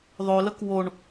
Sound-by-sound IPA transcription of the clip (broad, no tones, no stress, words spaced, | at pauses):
ðˤølək woɳ